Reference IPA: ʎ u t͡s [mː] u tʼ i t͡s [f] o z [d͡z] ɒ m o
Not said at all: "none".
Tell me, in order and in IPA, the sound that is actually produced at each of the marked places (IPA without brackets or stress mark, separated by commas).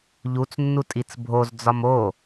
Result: nː, bʱ, d͡z